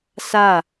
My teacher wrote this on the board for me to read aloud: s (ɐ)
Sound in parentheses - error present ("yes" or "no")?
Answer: yes